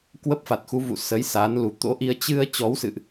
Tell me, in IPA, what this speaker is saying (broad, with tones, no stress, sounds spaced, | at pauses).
k w ə˦˥ p̚ f a˨˩ t̚ x u˨˦ v ṵ˧˨ s ə˨˦ j s a˨˦ n l u˨˩ t̪ o̰˧˥ ʔ i˧ ə̯ t͡ɕ ɨ˧ ə̯ t͡ɕ ɔ˨˦ w s ɨ̰˧˨ ʔ